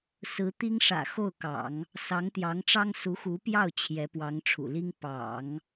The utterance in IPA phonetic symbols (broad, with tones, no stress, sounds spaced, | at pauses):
s ɹ̩˧˥ t̪ i˥ ŋ ʂ ä̰˨˩ x o˥˩ ʊ̯ k ɑ̰˨˩˦ ŋ | s ɑ˧˥ ŋ t̪ j ɑ˧˥ ŋ ʈ͡ʂ ɑ˥ ŋ s u˧˥ x u˧˥ p j ɑ˥˩ ʊ̯ t͡ɕʰ j ɛ˧˥ p w ɑ˧˥ ŋ ʈ͡ʂʰ ṵ˨˩ l i˥ ŋ p ɑ̰˨˩˦ ŋ